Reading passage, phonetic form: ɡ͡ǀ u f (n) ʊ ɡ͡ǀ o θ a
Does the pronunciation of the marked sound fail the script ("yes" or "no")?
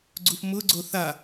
yes